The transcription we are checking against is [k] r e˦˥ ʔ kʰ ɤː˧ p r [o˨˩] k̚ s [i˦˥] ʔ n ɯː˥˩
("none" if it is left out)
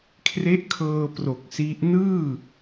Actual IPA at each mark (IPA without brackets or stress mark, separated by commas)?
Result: kʰ, o˨˩, i˦˥